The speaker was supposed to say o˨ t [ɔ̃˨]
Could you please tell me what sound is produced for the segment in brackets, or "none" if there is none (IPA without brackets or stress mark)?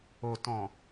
ɔ̃˨